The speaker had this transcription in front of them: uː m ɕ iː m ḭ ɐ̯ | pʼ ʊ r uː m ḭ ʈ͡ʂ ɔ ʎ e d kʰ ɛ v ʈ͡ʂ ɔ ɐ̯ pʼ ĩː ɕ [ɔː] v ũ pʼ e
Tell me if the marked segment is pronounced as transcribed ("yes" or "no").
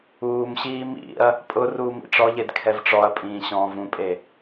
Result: no